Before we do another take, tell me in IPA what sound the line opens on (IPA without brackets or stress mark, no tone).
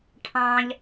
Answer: ʈʰ